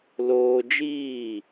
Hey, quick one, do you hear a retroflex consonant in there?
no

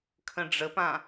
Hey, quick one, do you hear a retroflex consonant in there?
yes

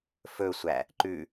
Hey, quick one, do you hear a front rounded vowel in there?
no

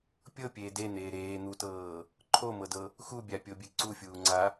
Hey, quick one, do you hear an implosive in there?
no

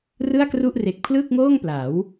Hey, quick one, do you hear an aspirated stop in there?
yes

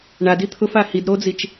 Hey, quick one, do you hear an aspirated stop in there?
yes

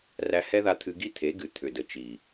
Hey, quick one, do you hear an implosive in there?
no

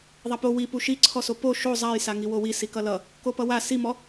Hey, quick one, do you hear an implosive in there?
no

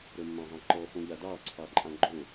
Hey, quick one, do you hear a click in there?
yes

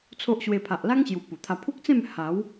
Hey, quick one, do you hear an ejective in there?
no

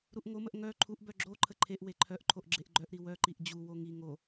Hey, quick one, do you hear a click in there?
yes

